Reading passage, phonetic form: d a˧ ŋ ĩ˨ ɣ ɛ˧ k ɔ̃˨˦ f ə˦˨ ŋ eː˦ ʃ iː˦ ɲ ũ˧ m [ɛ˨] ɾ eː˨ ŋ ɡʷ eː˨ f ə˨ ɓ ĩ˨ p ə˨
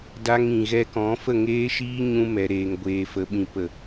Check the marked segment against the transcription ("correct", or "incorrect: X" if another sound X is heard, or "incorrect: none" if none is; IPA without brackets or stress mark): correct